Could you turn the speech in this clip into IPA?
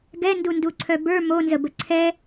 ɡ ɛ n d u n d u ǀʰ œ b ə˞ m o n z ə b ə ǀʰ ɛ

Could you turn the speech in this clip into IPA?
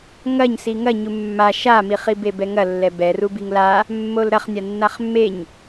ŋ ɐ ɲ s i ŋ ɐ ɲ u mː a ʃ a m i χ i b e b ɛ ŋ ɐ lː ɛ b ɛ r u b i ŋ l a | mː o l ɾ ɐ χ nʲ a nː a χ mː e ɲ

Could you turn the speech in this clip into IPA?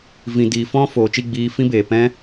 v ĩ˨ d iː˨ f ɔ̃˧ f oː˨ t͡ʃ i˦˨ ɡ͡b iː˧ f ĩ˦ b eː˨ p ɛ̃˦

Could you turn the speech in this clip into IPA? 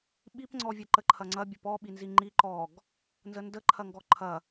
ɓ i p ŋ͡ǀ ɔ vʲ ɐ ǃ ə ǃʰ ɐ ŋ͡ǀ ɐ bʲ ə p ɔ ɓ i n z i ŋ͡ǃ i ǃ ɔ ɡ | n z ə n d ə ǃʰ ɐ ŋ ɡ ɔ ǃʰ ɐ

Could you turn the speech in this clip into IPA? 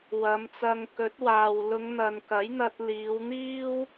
w ɐ˨˧ m t͡s ɐ˧ ŋ k ɵ˨˥ t̚ w aː˨ w l ʊ˨˧ ŋ n̪ ɐ˨ n k ɐ˨˥ j n̪ ɐ˧ t̚ l iː˨˧ w n̪ iː˥ w

